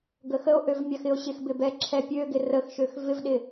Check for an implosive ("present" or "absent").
present